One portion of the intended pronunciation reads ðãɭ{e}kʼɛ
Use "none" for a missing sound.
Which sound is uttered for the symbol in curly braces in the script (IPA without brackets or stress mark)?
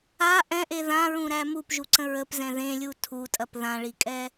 i